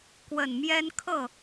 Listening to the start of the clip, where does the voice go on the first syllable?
low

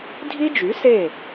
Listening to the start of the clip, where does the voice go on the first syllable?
high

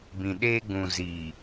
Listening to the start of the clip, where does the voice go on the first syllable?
low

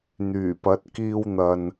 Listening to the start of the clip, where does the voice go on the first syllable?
low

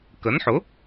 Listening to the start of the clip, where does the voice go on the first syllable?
rising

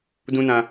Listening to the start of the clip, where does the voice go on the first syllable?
high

